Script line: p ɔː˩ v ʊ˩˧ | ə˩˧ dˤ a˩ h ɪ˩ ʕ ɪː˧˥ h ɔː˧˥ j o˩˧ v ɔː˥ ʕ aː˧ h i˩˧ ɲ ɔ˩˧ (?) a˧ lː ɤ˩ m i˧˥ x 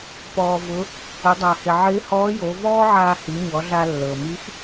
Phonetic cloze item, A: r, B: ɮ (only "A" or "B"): B